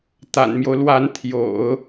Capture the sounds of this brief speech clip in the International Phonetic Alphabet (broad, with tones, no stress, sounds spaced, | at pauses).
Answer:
t̪ a̰˨˩ n m j o˦ ʊ̯ l w a˧˥ n t̪ʰ j o̰˨˩˦ ʊ̯